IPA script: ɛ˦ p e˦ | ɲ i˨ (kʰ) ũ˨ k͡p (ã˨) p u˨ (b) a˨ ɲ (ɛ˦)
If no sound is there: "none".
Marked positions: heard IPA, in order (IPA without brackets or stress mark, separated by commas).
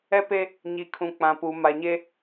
kʰ, ã˨, m, e˦